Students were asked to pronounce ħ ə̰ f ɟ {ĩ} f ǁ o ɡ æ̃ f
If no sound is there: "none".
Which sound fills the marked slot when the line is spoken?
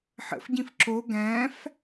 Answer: ĩ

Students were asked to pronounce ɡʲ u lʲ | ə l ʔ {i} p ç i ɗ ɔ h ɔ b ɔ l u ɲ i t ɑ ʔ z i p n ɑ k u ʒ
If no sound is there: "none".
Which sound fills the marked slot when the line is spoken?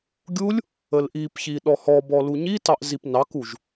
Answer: i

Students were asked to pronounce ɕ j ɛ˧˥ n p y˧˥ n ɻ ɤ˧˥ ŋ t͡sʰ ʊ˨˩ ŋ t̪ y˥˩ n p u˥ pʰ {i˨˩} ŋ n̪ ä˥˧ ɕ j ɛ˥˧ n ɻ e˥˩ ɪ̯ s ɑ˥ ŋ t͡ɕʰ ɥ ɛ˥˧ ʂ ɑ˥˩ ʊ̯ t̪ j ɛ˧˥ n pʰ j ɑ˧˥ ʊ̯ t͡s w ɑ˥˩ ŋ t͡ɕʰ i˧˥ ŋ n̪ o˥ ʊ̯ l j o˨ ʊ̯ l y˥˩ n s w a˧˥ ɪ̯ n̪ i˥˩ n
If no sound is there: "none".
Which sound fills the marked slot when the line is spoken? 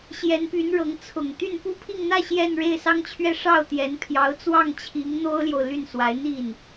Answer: i˥˧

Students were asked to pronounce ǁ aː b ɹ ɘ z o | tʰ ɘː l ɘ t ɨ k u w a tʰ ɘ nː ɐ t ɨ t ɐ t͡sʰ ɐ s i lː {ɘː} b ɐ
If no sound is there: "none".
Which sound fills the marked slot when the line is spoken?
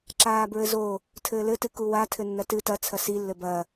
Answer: ɘ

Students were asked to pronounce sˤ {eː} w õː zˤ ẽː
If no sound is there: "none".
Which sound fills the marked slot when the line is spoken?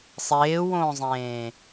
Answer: eː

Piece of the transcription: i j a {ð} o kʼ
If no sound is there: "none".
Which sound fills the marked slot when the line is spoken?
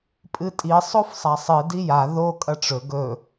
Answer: ð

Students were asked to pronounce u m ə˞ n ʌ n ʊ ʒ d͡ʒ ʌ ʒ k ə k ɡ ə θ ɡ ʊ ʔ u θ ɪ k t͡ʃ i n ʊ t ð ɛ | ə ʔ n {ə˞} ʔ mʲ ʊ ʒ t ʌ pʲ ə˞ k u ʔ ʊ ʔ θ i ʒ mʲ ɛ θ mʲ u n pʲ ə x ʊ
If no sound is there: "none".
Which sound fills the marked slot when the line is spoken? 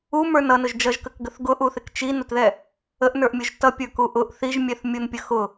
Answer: ə˞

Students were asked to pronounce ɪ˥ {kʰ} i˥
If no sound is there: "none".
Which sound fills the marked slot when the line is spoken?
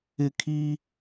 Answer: kʰ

